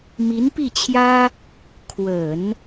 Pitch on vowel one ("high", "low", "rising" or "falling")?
rising